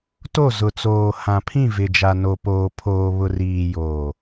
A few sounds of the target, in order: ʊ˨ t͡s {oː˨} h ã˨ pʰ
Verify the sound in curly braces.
correct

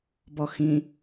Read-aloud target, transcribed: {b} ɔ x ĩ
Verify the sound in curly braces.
correct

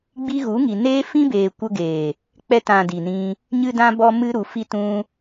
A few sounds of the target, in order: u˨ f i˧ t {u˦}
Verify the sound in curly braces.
incorrect: ũ˦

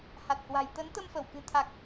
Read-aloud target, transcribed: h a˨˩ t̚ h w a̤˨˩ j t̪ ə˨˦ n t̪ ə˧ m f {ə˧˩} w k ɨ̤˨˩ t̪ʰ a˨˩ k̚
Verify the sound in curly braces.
correct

